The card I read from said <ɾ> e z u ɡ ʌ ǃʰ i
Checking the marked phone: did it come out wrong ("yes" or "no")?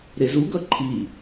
no